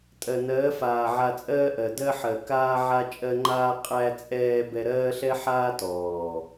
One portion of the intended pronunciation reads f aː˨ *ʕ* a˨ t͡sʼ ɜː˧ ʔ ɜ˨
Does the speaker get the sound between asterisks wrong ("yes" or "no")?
no